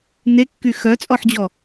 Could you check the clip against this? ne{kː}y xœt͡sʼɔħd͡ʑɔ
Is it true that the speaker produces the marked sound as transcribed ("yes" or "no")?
yes